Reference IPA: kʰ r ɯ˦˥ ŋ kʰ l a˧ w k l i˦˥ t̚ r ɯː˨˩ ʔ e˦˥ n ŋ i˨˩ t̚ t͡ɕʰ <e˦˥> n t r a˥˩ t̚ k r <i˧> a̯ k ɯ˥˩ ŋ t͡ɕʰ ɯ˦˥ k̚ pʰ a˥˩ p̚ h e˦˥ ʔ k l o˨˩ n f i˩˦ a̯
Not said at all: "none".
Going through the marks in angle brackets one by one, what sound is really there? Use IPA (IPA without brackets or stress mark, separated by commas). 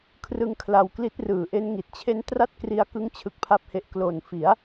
e˦˥, i˦˥